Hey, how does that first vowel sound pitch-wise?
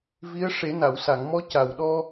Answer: rising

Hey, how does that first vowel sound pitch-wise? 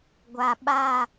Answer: low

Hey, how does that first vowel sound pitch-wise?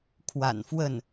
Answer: low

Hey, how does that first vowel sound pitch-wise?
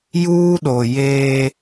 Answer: high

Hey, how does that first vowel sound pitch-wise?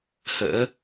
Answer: rising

